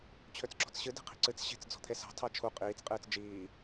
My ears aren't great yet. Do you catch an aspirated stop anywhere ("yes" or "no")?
yes